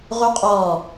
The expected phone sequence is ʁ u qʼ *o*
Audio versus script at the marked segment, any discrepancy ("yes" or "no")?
yes